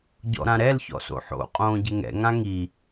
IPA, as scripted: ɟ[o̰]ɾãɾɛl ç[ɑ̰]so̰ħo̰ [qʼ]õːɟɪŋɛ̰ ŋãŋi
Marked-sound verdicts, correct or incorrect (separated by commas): incorrect, incorrect, correct